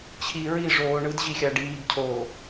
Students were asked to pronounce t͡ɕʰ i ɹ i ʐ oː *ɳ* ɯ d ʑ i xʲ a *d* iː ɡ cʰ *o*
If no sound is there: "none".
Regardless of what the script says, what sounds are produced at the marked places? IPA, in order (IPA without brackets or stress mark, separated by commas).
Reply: ɳ, ɖ, oː